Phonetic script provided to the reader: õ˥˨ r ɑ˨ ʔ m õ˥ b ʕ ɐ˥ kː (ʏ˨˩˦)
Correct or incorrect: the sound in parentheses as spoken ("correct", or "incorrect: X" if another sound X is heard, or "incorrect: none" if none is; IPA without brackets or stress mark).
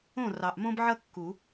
incorrect: u˨˩˦